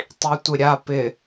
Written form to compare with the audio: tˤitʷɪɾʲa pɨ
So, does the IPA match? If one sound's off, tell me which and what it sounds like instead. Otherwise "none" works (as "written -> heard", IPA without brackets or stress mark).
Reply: ɨ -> ɪ